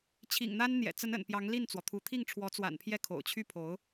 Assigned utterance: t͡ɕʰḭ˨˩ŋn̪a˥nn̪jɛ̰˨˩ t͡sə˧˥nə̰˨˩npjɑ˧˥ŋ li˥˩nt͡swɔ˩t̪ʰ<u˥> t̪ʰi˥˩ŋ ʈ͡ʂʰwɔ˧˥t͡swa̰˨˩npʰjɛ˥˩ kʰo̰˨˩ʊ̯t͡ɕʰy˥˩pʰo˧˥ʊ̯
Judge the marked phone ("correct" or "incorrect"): incorrect